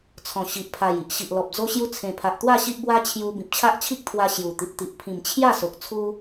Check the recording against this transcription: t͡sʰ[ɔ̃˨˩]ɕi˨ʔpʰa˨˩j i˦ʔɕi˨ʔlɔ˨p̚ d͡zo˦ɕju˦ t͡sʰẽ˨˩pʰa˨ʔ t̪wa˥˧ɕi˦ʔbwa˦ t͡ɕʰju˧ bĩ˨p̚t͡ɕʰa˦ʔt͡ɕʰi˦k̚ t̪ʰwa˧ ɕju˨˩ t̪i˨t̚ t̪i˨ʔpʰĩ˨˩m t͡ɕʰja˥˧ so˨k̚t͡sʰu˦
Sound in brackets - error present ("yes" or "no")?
no